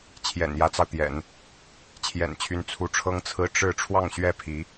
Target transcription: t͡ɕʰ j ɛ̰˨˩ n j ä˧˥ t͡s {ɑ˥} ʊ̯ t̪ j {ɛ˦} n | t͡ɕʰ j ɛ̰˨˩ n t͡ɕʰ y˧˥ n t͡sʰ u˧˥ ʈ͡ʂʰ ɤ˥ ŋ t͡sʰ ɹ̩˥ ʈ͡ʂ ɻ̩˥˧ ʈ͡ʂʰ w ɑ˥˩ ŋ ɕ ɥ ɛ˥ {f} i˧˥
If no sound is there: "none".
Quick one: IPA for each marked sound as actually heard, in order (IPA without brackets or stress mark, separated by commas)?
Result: ɑ˧, ɛ̰˨˩˦, pʰ